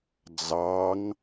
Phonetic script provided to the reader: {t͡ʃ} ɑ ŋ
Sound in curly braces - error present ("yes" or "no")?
yes